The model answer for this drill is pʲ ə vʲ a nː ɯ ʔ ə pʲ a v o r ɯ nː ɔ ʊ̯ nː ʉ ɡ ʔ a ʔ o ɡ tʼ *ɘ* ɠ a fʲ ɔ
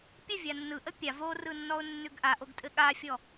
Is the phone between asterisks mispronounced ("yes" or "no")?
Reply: no